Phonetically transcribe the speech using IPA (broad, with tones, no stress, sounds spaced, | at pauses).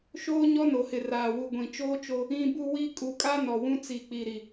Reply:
ʃ oː˦ ɲ ɔ˦ n o˨ h ɪ˨ r aː˨ w u˨ ɡʷ ĩ˨ t͡ʃ oː˦ t͡ʃ o˦ | ĩ˦ b u˦ w i˦ kʼ u˨ kʼ a˦ n ɔ˨ w ũ˦ t͡s i˨ k͡p i˨ ɾ i˨